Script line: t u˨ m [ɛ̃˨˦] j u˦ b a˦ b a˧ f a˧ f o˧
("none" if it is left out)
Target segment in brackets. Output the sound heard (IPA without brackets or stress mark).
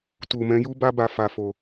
ɛ̃˨˦